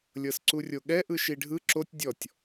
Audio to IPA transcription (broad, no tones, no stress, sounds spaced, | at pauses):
lʲ ɤ s ǀ u rʲ o ɠ ɛ ʔ ɯ ʃ i ɖʱ ɯ ǁ o tʲ dʲ ɔ tʲ